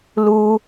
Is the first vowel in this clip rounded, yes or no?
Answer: yes